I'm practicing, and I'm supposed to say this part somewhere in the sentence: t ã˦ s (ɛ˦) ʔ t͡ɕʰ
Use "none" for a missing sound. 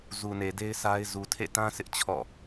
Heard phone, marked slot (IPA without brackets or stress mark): ɪ˦